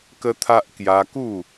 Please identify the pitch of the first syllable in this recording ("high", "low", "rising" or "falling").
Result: high